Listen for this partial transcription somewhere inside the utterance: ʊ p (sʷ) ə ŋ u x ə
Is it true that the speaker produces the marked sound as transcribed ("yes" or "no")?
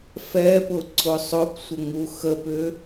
yes